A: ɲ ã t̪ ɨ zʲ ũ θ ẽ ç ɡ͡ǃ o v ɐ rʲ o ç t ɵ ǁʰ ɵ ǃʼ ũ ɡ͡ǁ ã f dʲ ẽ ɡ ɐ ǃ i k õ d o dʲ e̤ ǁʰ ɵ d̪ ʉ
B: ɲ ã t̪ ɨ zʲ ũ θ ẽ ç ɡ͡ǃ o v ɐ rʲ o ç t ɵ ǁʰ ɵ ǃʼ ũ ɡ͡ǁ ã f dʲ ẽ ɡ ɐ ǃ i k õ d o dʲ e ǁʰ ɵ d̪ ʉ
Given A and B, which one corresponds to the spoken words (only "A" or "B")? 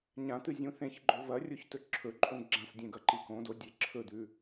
B